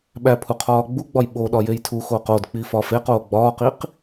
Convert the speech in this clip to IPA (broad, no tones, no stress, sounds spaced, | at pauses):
ɓ æ pʰ u qʰ ɒː ɡ͡b u ɡ͡b ɒ j ɓ o ɗ ɒ j e j tʰ u x oː q o d k͡p i f ɒː f e q oː ɡ͡b ɒː q i q